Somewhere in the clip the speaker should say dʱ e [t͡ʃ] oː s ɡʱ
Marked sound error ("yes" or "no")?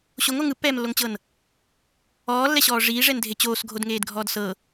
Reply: yes